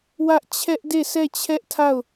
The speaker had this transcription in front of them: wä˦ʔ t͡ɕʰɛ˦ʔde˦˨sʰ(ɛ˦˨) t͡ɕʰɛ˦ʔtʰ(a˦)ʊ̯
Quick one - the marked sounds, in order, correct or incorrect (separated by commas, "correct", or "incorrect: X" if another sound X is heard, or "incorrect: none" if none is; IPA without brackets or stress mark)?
correct, incorrect: a˦˨